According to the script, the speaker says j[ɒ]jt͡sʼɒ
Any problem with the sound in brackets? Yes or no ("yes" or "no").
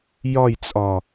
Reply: no